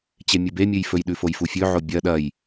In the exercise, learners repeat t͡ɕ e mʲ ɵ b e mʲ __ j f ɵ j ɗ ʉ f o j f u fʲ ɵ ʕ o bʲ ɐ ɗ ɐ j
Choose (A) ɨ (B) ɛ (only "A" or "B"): A